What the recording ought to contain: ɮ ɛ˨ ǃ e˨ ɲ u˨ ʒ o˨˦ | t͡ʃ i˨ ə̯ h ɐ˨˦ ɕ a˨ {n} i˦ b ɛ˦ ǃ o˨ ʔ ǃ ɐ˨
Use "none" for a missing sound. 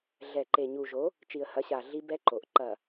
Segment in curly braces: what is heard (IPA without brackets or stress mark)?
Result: ɮ